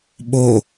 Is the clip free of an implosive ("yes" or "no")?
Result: no